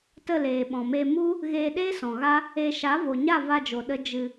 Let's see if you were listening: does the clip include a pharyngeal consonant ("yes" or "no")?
no